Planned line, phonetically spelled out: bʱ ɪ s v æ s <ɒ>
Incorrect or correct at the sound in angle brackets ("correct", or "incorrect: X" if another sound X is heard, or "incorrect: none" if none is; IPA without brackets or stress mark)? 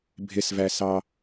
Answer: incorrect: ɑ